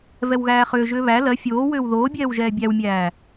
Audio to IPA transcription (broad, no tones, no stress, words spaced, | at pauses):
vɛwɣæːχʏːʒʏː βæ lɜ fʲoːwʏːw ðoːbʲɛːw ʒɛːbʲæwmʲæː